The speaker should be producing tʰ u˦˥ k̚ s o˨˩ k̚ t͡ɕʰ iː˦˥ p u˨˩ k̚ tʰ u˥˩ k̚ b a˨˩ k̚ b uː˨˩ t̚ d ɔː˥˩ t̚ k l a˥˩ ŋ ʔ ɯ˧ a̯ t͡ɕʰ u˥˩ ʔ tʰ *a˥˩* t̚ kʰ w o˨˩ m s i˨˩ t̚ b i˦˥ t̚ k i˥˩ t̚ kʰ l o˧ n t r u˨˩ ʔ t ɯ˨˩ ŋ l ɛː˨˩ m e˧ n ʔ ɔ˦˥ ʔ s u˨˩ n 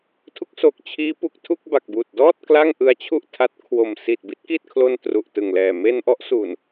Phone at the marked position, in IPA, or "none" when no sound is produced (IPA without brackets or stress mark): a˦˥